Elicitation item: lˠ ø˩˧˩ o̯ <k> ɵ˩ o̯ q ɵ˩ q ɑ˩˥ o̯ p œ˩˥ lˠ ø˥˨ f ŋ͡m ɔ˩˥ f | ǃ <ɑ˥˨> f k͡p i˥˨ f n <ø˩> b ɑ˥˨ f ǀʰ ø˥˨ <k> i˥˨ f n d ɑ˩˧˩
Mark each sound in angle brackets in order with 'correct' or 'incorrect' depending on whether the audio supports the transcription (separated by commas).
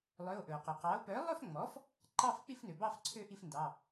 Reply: incorrect, correct, correct, incorrect